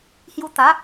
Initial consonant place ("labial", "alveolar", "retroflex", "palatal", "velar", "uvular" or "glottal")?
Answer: glottal